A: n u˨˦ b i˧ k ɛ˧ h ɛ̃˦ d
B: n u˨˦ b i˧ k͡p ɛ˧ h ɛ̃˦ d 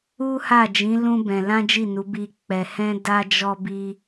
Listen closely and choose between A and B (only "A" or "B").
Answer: B